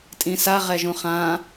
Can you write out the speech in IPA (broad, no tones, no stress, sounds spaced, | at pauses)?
tʼ ĩ s a ʁ ɛ ʒ ũ χ ã